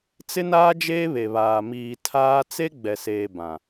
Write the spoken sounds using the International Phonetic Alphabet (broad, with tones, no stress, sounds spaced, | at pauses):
t͡s ɪ˦ n aː˦ d͡ʒ eː˦ β e˨ β aː˨ m iː˨ tʰ aː˦ t͡s e˦ ɡ͡b ɛ˨ s eː˨ b ã˨